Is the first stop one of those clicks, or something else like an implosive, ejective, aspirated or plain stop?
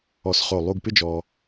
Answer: plain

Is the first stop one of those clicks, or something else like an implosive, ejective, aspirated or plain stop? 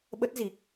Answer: implosive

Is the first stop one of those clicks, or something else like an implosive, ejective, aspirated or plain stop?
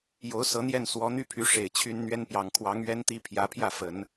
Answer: aspirated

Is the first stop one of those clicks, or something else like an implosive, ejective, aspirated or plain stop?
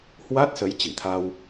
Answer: plain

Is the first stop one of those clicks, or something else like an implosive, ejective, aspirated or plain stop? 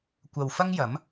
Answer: plain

